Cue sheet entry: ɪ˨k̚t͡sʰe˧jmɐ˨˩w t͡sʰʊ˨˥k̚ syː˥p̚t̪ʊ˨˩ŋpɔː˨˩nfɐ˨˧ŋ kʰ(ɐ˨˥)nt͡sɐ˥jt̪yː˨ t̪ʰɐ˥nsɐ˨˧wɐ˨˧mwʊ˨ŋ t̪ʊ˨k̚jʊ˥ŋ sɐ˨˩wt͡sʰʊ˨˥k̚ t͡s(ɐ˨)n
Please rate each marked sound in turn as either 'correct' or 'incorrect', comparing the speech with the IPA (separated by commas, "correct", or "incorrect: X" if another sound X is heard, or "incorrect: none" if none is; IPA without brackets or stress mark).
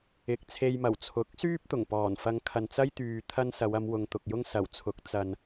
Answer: incorrect: ɐ˨, correct